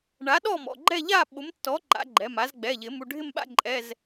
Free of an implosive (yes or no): no